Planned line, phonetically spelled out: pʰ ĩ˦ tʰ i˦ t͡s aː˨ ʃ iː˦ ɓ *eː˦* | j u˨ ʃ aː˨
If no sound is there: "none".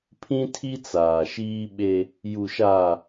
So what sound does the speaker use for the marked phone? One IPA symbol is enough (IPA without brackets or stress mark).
e˦